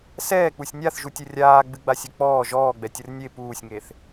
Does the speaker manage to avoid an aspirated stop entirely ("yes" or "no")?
yes